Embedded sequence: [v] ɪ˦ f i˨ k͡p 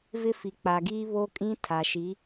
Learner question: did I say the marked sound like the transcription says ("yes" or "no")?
yes